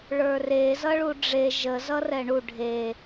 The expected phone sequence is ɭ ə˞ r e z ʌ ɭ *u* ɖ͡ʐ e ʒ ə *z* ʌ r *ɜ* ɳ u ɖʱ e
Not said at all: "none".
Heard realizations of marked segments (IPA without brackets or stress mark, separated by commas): u, z, ɛ